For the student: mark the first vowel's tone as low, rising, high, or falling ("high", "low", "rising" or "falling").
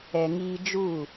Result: low